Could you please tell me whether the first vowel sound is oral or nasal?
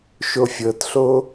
oral